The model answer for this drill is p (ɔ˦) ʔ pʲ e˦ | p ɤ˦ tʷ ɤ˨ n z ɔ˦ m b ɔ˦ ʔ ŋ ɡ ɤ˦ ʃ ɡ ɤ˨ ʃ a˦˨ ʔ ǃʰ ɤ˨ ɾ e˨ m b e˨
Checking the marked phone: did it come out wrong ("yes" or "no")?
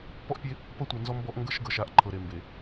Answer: no